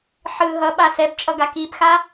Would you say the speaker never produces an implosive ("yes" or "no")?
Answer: no